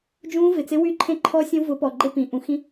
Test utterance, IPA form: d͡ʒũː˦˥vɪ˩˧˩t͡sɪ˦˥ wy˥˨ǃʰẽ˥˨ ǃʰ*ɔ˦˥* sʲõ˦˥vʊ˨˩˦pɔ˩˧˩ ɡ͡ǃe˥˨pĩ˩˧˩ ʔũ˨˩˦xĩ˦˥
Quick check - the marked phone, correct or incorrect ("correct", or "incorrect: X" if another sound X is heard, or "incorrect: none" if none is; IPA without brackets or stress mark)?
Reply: correct